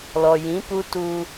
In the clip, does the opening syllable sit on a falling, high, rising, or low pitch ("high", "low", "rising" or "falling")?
low